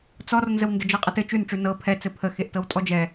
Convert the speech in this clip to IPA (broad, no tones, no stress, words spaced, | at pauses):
t͡sɔrnzəw ndəd͡ʒɤqʼɐt ɘ t͡ʃʉnʈ͡ʂʉ nɤ pʰɛt͡sɘ pʰə xeʔtɤwtʼɔd͡ʒɛ